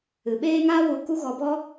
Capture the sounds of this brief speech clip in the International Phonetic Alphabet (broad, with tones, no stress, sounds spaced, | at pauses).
ɨ˨ ɓ eː˦ ŋ a˦ w u˧ k u˦ ɣ ɔ˧ b ɔ˦